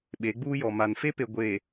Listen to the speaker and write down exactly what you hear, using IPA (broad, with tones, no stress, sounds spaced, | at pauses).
ɓ e˨˦ ɡ͡b uː˦ j ɔ˨ m a˨ n f e˦ p e˨ ɡʷ e˨